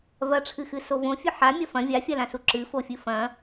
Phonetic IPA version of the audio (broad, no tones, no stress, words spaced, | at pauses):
vɐʈ͡ʂʰɨxɨso võfʲɵ ħamʲɐ fɐ̃ vʲafʲalãsu ǁɨfofʲɨ fɐ̃